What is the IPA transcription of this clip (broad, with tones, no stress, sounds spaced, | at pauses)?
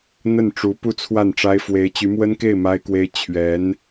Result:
n̪ ə˥˩ n ʈ͡ʂ u˧˥ p u˥˧ t͡sʰ w a˥˩ n ʈ͡ʂ a˥ ɪ̯ f w e˧˥ ɪ̯ t͡ɕ y˧˥ m w ə˥ n k e˥˩ ɪ̯ m a˥ ɪ̯ k w e˥ ɪ̯ t͡ɕʰ ɥ ɛ˧˥ n